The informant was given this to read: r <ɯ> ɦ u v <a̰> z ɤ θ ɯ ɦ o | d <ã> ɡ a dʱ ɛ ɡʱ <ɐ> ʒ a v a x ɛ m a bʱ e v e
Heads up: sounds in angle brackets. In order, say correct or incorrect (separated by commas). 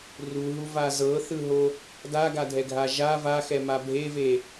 incorrect, incorrect, incorrect, incorrect